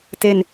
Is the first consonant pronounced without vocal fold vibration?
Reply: yes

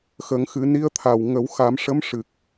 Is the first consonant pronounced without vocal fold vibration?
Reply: yes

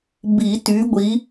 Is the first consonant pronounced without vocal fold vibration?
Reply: no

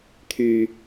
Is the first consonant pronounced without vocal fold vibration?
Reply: yes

